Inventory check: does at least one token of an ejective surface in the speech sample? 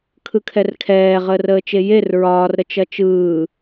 no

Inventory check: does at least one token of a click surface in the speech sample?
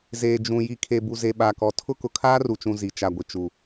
no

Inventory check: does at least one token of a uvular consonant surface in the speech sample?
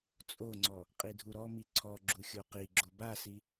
yes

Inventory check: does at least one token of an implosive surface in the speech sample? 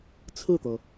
no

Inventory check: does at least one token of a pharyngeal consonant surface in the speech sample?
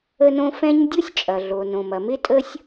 no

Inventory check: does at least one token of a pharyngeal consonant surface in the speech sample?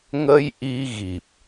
no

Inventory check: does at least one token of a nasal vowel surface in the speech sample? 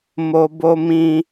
yes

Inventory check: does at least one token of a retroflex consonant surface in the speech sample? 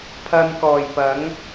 no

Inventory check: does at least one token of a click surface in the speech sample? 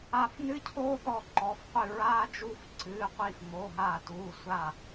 yes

